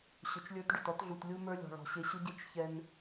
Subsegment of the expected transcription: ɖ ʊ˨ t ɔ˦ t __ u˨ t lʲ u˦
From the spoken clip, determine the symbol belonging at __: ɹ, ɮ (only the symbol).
ɮ